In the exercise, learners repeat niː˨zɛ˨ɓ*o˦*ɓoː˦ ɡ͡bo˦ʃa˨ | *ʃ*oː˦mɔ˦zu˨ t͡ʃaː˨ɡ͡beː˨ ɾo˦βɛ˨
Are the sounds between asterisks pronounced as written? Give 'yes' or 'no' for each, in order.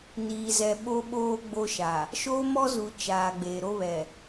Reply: yes, yes

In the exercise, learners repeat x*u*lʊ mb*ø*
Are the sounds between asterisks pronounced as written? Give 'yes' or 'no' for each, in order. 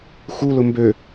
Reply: yes, yes

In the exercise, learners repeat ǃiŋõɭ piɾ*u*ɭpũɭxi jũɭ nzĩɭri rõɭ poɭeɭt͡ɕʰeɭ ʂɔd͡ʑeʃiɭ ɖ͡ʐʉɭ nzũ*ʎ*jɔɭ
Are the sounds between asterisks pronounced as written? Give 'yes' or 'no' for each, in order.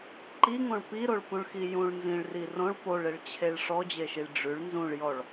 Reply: no, no

